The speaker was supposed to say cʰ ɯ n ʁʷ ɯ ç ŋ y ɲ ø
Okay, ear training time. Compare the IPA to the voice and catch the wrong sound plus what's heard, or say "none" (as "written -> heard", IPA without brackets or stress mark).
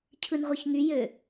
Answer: ɲ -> j